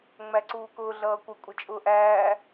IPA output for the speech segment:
ŋ͡mæǀuːkʊː ɮʌːkʷʌ kʷʼʌt͡ʃʼʊːʔæː

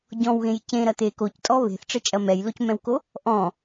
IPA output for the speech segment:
ɟɔ̃wɣẽj cẽɾɐ t̪e koctʼɔ βe̤θʈ͡ʂət͡ʃʼɐ mɛjlocmɛ̃wko | ʔɔ̃

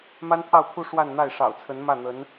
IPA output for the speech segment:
ma˥nt̪ʰɑ˥˧ʊ̯pʰu˥˧ ʂwa˥˧nn̪a˥˩ɪ̯ ʂɑ̰˨˩ʊ̯t͡sʰə˧˥n mä˥˩n̪ə˧˥n

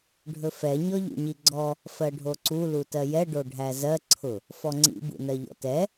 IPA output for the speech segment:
ɖʱɵfɛ ɲɔʎṵɲiɡ͡ǀɔ | fɜɖʱoǀu lutɜjɛ ɖoɖʱæzɜ ǀʰʊ | fɔŋ͡ǀḭ bṵnɜʎɔ̰tɛ

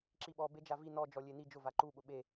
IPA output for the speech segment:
ǁiɓɔ bed͡ʒavi nɔ d͡ʒɔlʲeni d͡ʒʊ vaǃu ɓʊɓe

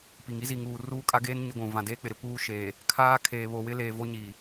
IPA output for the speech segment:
pi˨ŋ i˦zi˨ŋuː˨ ruː˦kʼa˦ɡeː˦n ɲi˦ɡʷũ˨ vã˨deː˦k͡pɪ˨ɾɪ˨ puː˦ʃeː˨ | kʰaː˦ kʰeː˨βo˨wɪ˦leː˨ vo˦ɲiː˨

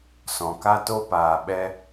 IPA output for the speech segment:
sɔ̃˨ka˦to˦ paː˨ɓɛ˧

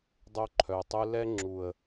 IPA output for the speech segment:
dˤo˦ǃʰœ˨ tˤu˧lɛ˦ŋ͡ǁu˨ə̯

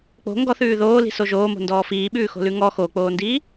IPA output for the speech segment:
k͡po̤ ŋɡɔθʉː ðoːli̤so ʒoːmo̤ndɔː fiːɓʉːxo̤lʉ ŋɔ xok͡poːndiː

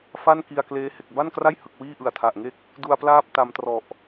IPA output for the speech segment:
fa˥˩nki˧a̯kleː˦˥ he˨˩k̚ba˥˩nkra˥˩jhɯ˨˩k̚ wiː˥˩ʔɯ˨˩a̯tʰa˨˩ʔŋe˥˩k̚ | du˧a̯plaː˥˩p̚ ta˧mtrɔ˨˩ʔ

